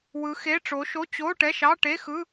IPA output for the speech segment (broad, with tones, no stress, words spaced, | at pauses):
wɯ˨˦xe˧˥˧ʈ͡ʂo˨˦ ʃo˧˥˧t͡ɕo˧˥˧ ʈɛ˧˥˧ʃɑ˧˥˧ ʈe˧˥˧xɯ˧˥˧